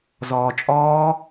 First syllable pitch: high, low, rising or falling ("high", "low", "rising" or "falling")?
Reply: low